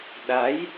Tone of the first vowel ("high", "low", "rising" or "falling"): rising